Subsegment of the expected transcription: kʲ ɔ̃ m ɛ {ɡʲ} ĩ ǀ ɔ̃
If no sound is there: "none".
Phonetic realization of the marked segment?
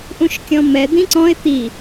d̪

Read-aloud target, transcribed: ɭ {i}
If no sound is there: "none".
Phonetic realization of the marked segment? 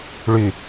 y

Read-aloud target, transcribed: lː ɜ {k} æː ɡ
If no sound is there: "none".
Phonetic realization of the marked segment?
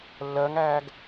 ŋ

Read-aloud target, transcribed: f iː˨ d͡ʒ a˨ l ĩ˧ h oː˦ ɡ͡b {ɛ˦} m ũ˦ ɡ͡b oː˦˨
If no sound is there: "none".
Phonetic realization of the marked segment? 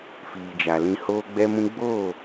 ɛ˦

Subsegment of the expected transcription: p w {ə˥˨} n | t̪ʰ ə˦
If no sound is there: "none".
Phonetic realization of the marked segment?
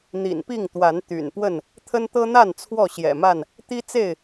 ə˥˨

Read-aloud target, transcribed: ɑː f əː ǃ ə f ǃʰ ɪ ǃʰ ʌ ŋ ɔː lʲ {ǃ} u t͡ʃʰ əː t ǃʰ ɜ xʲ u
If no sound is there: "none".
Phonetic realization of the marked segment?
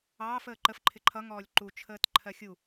ǃ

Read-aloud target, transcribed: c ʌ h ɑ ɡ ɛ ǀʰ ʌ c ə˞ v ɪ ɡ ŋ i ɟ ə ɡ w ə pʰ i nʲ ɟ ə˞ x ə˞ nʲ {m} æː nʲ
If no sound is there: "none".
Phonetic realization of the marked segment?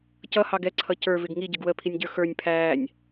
pʰ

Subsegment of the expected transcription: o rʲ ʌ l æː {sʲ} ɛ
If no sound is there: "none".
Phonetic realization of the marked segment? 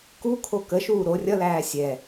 sʲ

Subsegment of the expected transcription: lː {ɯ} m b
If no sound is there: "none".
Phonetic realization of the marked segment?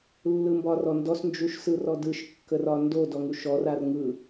ɯ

